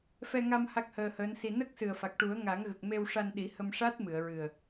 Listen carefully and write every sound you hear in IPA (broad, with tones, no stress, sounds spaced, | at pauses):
f ɛ˧ ŋ a˧ m h a˦˥ k̚ h əː˧ h əː˧˥ n s i˧ n ə˦˥ k̚ s ɨ˨˩ ə̯ f a˨˩ k̚ ʈ u˨˩˦ ə̯ ŋ a˨˩˦ ŋ ɣ ə˨˩ k̚ m e˧ w ʂ a˧ n ɗ i˨˩˦ h ə˧ m ʂ a˦˥ t̚ m ɨ˨˩˨ ə̯ ɹ ɨ˨˩ ə̯